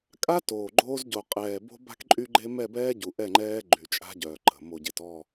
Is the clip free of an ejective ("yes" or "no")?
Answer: no